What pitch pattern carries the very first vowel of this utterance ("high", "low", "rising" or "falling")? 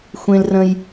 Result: high